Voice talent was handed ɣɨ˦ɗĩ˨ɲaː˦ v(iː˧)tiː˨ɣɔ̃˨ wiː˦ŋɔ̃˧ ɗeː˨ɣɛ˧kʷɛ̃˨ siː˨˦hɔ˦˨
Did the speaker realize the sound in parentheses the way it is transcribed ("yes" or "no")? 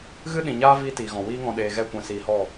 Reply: no